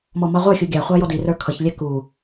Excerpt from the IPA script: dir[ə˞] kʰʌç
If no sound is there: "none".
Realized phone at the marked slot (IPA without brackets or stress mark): ə˞